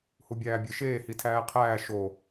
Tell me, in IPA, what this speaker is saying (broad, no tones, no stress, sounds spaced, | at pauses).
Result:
h u bʲ æː bʲ e ʃ eː h i tʰ æː qʰ æː ʃ o